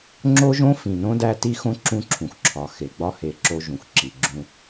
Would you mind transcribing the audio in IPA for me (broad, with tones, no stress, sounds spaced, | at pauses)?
ŋ͡ǁ o˦ ʒ õ˦ f ĩ˨ n õ˦ d æ˦ t i˦ x õ˦ ǁ ũ˦ ǁʰ ũ˨ x ǁʰ ɒ˨ x e˨ ɡ͡b ɒ˦ h e˨ ǁ o˦ ʒ ũ˨ x ǁ i˨ ɡ͡ǁ ũ˦